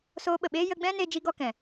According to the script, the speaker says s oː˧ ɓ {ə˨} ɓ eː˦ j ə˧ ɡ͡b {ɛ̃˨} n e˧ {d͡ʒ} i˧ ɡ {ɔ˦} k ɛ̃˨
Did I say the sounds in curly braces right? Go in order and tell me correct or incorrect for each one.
correct, incorrect, correct, correct

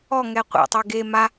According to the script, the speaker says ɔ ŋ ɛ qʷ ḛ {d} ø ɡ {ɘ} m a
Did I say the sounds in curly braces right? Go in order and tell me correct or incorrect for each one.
incorrect, incorrect

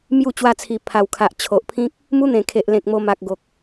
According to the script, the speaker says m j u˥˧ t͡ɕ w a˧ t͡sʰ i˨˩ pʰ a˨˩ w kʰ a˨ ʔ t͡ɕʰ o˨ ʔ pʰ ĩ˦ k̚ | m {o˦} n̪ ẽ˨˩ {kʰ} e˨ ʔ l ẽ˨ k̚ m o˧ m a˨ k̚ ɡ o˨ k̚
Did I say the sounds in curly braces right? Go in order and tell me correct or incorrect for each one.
incorrect, correct

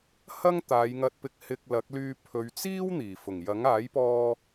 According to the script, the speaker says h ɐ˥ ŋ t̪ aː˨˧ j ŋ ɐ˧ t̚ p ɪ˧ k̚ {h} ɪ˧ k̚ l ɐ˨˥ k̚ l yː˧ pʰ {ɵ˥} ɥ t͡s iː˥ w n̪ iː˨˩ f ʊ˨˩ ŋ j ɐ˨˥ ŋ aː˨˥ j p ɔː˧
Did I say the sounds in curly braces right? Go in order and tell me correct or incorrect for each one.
correct, incorrect

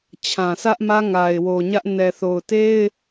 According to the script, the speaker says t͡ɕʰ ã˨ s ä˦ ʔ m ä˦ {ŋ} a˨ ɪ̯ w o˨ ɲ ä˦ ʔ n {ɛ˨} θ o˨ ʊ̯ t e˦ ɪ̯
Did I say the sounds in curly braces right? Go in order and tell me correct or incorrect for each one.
correct, correct

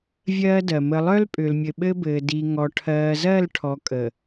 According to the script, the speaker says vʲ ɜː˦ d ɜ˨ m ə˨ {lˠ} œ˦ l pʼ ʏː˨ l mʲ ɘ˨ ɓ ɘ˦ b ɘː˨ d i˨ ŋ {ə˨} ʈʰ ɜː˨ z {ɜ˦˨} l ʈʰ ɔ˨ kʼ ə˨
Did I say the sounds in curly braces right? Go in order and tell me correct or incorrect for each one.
correct, incorrect, correct

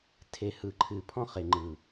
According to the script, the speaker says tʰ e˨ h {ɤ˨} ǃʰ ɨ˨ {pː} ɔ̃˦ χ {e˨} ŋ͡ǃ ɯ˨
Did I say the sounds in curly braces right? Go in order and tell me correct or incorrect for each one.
incorrect, incorrect, correct

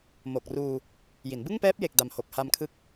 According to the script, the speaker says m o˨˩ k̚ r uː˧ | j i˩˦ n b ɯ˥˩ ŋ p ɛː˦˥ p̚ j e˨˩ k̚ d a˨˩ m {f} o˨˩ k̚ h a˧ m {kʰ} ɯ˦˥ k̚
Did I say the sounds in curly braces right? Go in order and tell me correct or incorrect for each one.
incorrect, correct

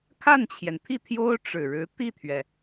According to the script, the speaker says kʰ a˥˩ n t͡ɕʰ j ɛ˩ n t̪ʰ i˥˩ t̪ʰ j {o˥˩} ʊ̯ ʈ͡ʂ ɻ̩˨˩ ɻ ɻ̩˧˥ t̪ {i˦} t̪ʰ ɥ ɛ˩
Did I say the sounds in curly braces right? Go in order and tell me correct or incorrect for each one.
incorrect, incorrect

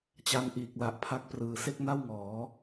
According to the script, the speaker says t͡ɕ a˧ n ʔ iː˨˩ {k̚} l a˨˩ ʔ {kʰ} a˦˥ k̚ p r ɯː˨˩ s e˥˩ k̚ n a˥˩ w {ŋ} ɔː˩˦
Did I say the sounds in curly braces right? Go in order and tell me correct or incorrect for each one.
correct, incorrect, correct

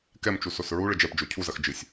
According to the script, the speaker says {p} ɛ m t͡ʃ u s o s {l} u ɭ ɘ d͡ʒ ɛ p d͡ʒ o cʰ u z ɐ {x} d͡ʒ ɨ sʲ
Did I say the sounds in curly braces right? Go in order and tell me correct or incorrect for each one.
incorrect, incorrect, correct

